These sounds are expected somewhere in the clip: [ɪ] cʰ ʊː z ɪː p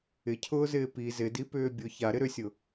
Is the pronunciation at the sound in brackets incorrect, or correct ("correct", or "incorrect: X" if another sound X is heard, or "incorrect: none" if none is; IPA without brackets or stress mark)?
correct